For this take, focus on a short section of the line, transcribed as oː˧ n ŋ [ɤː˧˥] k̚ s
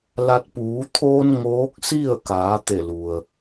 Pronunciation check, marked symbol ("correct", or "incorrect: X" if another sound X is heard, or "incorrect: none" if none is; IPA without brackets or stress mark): incorrect: oː˧˥